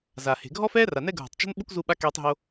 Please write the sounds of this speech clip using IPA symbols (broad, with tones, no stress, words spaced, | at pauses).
za˩he̤˩ɡʱɔ˦fɛː˦ ra˩nɛ˦ɡʱo̤˩tˤ t͡ʃo̤˦n ɓu˥kzu˦ɓa˦ keː˨tˤɦo˨